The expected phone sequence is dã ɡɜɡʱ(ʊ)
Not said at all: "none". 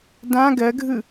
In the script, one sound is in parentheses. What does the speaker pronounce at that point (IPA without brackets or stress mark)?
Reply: ɯ